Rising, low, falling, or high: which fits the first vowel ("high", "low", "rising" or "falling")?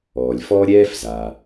low